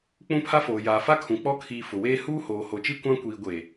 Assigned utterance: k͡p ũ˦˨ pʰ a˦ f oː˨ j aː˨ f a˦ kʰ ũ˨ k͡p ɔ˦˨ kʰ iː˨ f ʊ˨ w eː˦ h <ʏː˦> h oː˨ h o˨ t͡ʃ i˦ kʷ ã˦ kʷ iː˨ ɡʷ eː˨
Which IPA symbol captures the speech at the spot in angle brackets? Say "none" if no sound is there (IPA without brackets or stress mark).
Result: uː˦